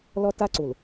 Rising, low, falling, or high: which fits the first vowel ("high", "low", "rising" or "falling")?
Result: high